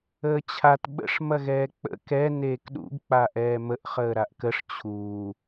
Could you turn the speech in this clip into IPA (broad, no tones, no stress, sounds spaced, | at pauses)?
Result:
əː t͡ɕʰ a t ɓ ə̰ ʂ m ɐ ɣ ɛː k͡p ə̰ k ɛ n eː k ɗ ṵ ɡ k͡p a ʔ ɛː m ə ʔ χ əː ɾ a ʔ k ə ʂ t͡ɕʰ uː